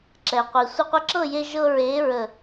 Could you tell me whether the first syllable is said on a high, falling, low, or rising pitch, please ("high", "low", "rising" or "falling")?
low